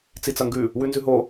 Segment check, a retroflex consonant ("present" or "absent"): absent